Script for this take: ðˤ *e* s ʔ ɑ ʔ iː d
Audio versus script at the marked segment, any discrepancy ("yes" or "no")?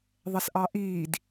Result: yes